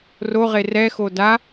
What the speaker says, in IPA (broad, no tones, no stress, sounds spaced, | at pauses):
r o ʁ e r ɛ x o d a